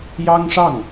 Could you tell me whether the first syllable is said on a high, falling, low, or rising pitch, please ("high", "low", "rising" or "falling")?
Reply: high